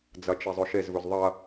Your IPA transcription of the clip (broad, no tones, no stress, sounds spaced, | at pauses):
d͡z ɐ t͡ʃ e zˤ ɵ ʃ e z v ɵ z ðˤ ɐ